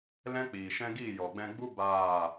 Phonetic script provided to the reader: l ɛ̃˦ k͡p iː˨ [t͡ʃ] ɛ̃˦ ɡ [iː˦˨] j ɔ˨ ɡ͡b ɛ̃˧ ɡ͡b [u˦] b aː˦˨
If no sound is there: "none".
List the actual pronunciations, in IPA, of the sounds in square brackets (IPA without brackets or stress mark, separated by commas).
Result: ʃ, iː˦˨, u˦